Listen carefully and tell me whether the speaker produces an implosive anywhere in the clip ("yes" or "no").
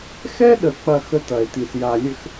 yes